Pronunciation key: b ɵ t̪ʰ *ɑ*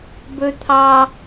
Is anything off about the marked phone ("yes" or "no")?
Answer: no